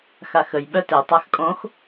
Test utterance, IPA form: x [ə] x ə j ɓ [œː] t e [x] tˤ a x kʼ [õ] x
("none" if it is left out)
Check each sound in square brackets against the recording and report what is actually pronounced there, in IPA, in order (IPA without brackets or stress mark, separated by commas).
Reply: a, œ, none, õ